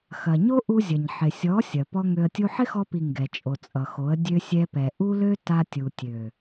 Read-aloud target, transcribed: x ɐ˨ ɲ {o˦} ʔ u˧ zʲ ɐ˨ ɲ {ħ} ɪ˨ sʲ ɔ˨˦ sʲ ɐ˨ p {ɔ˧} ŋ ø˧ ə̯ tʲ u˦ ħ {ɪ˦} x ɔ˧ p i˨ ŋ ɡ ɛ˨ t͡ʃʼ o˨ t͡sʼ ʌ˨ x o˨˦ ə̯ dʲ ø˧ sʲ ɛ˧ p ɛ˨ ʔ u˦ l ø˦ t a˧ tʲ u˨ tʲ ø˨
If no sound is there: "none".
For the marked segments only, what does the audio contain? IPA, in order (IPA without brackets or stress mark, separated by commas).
o˦, ħ, ɔ˧, ɪ˦